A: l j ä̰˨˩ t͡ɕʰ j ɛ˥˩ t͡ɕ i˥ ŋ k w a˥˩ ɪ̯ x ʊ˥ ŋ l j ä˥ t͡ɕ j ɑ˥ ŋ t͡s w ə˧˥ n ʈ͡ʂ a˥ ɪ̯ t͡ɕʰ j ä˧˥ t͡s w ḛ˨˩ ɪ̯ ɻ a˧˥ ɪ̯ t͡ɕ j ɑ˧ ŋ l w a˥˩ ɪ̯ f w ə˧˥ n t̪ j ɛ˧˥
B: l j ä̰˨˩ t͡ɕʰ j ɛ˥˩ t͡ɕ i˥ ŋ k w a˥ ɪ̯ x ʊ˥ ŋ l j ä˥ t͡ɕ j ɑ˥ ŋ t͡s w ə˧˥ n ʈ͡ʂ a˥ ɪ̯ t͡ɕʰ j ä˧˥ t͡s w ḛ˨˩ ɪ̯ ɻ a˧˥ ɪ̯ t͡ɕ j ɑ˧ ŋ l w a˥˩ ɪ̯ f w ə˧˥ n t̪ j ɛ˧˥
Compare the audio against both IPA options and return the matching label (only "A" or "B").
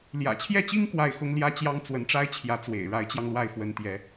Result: A